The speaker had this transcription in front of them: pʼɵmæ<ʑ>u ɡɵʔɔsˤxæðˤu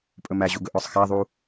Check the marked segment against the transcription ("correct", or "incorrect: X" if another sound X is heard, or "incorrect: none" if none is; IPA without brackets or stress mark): correct